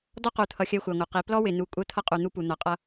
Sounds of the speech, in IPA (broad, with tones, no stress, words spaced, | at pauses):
dɔ˦qu˨t̪ʰʌ˨ xʲɜ˦xʷæ˨ŋʷʌ˨qi˨˦ plɔ˦wɪ˨nu˨ kʷʼɜ˦t̪ʰʌ˦qʼu˨ n̪u˦pu˨n̪ʌ˨ qʼʌ˦